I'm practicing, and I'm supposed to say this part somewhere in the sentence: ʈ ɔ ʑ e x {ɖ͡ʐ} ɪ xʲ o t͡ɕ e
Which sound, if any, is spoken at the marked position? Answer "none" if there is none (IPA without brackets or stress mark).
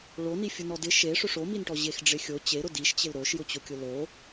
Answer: ɖ͡ʐ